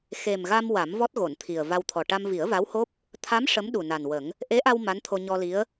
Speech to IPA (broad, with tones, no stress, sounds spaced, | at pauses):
x e˨˩ m ɣ a˧ m w a˨˩˦ m v ɔ˦˥ t̚ ɣ o˨˩˨ n t̪ʰ i˨˩ ə̯ v a˧ w t̪ʰ ɔ˨˩ ʈ a˧ m v i˨˩˦ ə̯ v a˧˥ w h o˦˥ p̚ | t̪ʰ a˧˥ m ʂ ə˧˥ m ɗ u˨˩ n a˨˩ n w ə˨˩˦ ŋ | ʔ e˧˥ ʔ a˧ w m a˧˥ n t̪ʰ o˧ ɲ ɔ˧ l i˧˥ ə̯